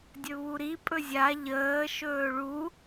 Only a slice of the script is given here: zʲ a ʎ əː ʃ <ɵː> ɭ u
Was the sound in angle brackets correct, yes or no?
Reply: yes